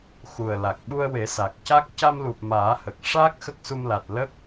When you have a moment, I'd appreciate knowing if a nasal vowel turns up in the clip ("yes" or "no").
no